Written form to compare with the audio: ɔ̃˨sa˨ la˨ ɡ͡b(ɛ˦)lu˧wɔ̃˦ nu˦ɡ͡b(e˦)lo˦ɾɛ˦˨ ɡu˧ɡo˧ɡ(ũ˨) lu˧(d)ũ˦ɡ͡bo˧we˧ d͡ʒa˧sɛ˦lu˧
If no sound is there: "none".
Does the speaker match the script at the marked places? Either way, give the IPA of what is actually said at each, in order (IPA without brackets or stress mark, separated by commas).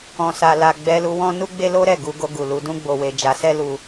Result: ɛ˧, e˦, u˨, d